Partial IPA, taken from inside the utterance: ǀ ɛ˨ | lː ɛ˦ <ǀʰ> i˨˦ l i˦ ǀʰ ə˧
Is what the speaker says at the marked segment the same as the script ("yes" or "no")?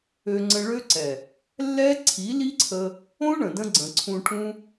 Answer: yes